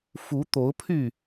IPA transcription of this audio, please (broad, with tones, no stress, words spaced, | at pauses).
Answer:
fu˨˦ t̪o˨˦ʊ̯pʰy˥˨